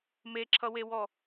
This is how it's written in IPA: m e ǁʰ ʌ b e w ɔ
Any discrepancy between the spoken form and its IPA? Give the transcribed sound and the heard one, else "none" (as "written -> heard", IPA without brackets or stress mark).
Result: b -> w